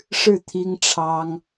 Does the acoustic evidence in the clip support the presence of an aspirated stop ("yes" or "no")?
yes